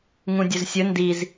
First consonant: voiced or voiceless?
voiced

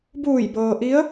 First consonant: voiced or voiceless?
voiced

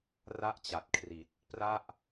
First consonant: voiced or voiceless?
voiced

